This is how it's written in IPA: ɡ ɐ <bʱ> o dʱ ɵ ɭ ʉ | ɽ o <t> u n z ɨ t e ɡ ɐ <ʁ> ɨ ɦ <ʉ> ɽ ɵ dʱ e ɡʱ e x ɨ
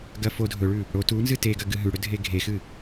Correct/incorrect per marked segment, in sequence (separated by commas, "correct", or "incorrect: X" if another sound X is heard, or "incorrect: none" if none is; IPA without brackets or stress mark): incorrect: f, correct, incorrect: ɡ, correct